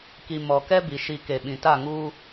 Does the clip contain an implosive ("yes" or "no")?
yes